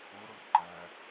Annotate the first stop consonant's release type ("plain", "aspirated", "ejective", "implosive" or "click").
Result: click